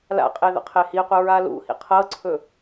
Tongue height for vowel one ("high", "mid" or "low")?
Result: low